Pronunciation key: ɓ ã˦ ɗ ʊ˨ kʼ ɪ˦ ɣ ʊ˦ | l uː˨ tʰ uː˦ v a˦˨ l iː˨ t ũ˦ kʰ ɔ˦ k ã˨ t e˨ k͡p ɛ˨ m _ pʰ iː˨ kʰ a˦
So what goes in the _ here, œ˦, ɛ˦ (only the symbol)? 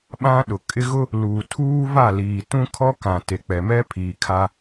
ɛ˦